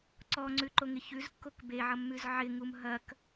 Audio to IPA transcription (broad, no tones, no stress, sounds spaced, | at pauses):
ǀ ɔ ŋ͡ǀ ʉ ǃ o ŋ ɪ ç ʉ z kː o k b e ʕ ʌ mː ʉ z ʕ ɪ ŋ u m ɦ ɐ k